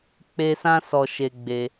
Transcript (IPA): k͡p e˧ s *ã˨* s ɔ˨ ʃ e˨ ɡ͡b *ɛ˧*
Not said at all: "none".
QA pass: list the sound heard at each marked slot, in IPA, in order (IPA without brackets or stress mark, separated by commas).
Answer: ã˧, e˧